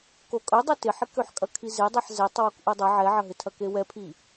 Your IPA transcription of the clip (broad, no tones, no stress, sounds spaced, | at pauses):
k o kʼ œ dˤ ɛ t ɪ ħ ɪ k ø ħ kʼ ɐ kʰ i z e dˤ e ħ z ɛ tˤ w o k ʔ u dˤ ɐ ʕ ɛ ʕ ɐ ɦ ɪ tʰ ɐ k e w ɛ pʰ i